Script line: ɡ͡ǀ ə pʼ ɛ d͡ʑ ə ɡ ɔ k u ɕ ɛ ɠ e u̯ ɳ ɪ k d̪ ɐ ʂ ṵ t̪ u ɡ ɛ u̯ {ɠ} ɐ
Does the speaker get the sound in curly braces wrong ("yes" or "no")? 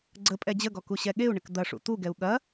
no